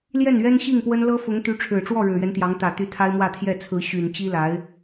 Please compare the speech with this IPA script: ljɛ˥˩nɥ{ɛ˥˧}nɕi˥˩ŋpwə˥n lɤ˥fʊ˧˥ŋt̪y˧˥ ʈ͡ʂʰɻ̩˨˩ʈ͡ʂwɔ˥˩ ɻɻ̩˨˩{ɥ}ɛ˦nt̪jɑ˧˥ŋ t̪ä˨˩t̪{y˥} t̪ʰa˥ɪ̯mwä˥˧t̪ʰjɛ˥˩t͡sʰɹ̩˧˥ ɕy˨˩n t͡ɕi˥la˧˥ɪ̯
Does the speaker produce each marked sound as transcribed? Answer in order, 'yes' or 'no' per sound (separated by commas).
no, yes, no